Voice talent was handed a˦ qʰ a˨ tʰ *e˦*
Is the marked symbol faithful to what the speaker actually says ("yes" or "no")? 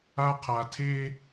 yes